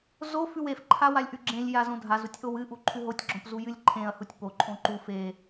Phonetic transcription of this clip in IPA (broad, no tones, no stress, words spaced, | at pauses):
zo fʉwef ǃʰawalʲʔʉɡ͡ǁẽlʲ jazõdʱaz utʲʔowɨ ʔuǃʰʉɦotʲ ɡ͡ǁõpzujɨlʲǃʰẽɐ̯ hutʲpo ǃʼõǃu fe